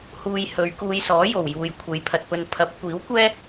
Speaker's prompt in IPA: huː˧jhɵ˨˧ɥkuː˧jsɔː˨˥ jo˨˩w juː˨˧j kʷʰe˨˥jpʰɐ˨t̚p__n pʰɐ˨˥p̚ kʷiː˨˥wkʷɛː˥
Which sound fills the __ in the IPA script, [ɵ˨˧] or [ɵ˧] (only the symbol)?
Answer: ɵ˧